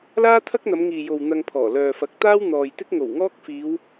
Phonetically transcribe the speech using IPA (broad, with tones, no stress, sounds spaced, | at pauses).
l aː˥ t̪ʰ ɐ˥ k̚ n̪ ɐ˨˧ m ŋ iː˨ j o˨ w n̪ ɐ˧ ŋ pʰ ɔː˨˩ l œː˨ f ɐ˨˥ k̚ t̪ aː˥ w n̪ ɔː˨ j t̪ ɪ˥ k̚ ŋ o˨˩ w ŋ ɔː˥ k̚ f iː˨˧ w